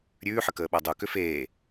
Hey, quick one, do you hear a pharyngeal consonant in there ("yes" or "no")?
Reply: yes